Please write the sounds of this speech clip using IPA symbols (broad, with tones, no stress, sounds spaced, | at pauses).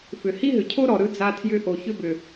f ʏ˨ h i˥ ɦ ʏ˨ cʰ o˥ ɾ ɔ˨ ɾ ɯ˦ d͡z a˦ tʰ j ʏ˦ ʔ o˨ ç ʏ˦ b ʏ˨